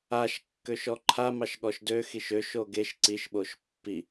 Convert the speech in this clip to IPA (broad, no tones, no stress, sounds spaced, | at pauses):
a ʃ kː ø ʃ ɔ ǃʰ a m ɑ ʃ ɠ ɔ ʃ d ø x i ʃ ø ʃ o ɡ e ʃ ǀ i ʃ ɓ o ʃ pː i